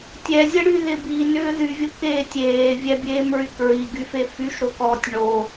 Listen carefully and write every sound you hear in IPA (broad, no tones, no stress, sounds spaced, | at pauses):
tʲ ɛ zʲ ə ɽ y ð ɪ b i n ʏː ð y vʲ ʊ k eː tʲ eː vʲ ɛ bʲ eː m ɹ y k ɹ i ɡ y f e f y ʃ ɾ o k ɔː tʲ ɳ o